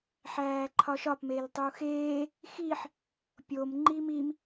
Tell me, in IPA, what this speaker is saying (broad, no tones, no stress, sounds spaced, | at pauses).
ħ æː ǃʰ ɒ ʃ ɒ p m e l tˤ u x eː | x i ħ | pʲ o m ŋ͡ǃ i m i m